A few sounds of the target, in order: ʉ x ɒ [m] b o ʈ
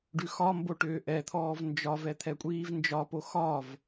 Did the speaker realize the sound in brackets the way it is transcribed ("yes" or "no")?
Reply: yes